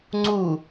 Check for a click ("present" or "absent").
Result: present